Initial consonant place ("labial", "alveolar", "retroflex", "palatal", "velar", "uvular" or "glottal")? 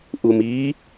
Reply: glottal